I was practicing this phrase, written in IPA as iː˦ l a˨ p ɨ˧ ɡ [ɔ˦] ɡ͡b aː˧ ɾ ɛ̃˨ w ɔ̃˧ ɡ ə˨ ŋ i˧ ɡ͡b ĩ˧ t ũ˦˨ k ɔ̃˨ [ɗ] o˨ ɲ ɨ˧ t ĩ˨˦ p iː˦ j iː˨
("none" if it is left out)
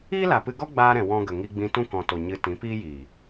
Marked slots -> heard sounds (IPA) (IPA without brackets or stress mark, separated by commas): ɔ˦, t